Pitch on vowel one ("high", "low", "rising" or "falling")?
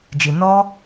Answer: low